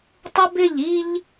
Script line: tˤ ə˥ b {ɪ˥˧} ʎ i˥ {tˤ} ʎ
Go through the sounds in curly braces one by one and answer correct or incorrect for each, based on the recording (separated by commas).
correct, incorrect